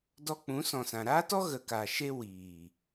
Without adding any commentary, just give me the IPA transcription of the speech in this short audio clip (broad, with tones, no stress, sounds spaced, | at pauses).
d ɔ˧ k͡p ũ˨˦ s ɔ̃˨ s ã˨ ɾ aː˦ t ɔ˦ ɣ ə˨ k a˨ ʃ e˧ w iː˨